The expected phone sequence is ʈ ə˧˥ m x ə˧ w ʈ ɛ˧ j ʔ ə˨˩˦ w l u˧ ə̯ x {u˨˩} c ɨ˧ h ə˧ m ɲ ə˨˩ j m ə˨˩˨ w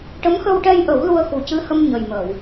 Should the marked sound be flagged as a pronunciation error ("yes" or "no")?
no